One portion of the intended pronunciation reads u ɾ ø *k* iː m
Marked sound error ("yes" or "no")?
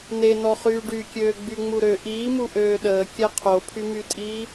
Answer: yes